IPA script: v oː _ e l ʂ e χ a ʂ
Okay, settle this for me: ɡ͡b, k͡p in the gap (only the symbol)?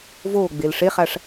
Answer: ɡ͡b